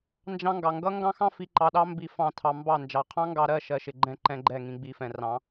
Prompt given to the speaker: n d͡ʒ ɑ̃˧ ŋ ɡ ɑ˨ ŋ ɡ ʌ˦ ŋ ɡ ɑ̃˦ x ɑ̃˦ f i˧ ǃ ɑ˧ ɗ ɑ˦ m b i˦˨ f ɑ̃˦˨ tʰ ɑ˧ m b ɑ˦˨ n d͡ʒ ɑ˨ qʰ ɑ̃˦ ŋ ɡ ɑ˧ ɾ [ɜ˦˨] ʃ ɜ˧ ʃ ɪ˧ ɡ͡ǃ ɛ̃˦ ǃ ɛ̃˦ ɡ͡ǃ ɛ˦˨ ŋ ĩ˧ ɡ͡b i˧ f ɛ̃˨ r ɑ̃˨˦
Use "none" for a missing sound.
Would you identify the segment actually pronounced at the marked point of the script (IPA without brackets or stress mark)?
ɜ˦˨